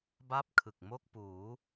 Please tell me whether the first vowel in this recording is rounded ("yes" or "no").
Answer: no